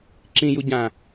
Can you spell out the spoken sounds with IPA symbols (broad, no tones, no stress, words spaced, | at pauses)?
ǁĩju ɟã